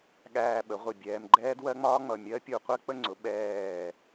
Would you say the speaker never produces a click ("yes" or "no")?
no